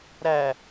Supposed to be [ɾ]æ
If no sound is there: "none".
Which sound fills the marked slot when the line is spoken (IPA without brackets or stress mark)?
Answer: ɾ